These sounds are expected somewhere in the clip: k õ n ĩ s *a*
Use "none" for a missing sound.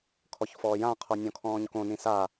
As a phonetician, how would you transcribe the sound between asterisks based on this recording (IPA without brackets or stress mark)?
a